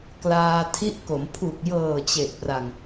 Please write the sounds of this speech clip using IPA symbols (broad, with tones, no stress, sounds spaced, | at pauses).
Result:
k l aː˧ tʰ i˦˥ ʔ k o˩˦ m pʰ u˨˩ k̚ j ɤː˨˩ t͡ɕ e˨˩ ʔ p r a˨˩ ŋ